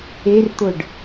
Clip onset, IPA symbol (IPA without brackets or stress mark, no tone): e